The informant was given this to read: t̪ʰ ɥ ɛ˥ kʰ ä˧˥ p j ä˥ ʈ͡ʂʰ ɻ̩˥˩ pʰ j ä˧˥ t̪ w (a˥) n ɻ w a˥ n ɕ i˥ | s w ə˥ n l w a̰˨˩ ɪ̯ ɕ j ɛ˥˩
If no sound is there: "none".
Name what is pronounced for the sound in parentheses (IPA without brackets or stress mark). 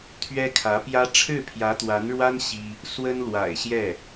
a˧˥